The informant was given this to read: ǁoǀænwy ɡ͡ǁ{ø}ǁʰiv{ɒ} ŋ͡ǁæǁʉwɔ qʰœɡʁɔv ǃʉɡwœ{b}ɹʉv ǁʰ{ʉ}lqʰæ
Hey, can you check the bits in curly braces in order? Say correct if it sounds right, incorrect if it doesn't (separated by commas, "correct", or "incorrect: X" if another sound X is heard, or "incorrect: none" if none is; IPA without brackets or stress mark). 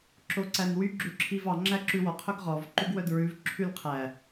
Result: incorrect: ʉ, incorrect: ɑ, incorrect: d, correct